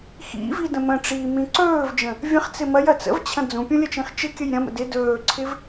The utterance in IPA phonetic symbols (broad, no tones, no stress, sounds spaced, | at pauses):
x ḭ v i d ə̃ m ə̃ ʈ͡ʂ iː m ĩ ǀ ɵː v d͡ʒ ə̃ | vʲ ə̃ χ t͡s ɪ m ɐ j ɐ t͡s ə̰ v t͡ɕʰ ɐ̃ d͡z ũ pʲ ũ lʲ ə t͡ʃ ĩ χ t͡ʃ ɪ kʲ ə j ɾʲ ɐ̃ m ə̰ d ɪ d ɵː ǀʰ ɪ v